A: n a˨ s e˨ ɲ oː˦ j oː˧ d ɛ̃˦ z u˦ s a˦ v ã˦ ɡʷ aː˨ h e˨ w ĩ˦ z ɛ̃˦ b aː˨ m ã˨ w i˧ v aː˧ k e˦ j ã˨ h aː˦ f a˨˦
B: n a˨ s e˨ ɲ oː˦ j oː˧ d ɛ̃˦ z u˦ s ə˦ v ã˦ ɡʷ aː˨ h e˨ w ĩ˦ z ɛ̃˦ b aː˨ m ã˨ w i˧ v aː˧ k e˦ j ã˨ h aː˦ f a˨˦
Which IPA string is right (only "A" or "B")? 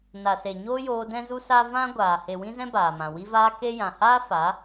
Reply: A